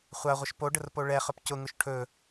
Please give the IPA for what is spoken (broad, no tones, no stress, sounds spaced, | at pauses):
χʷ a ʁʷ ə ʃ p o ɖ ə r p o ɭ ɛ χ ɵ p c ʊ ŋ ʊ ʃ ʈʰ ɵ